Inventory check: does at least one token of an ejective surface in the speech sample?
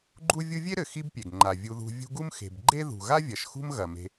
no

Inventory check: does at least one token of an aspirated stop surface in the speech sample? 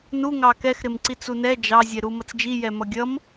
no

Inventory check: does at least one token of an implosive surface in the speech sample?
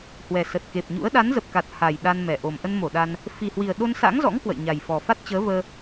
yes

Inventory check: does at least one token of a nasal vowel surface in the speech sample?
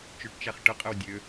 no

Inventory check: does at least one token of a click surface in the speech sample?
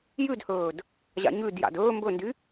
no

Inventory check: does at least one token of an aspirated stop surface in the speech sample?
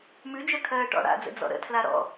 yes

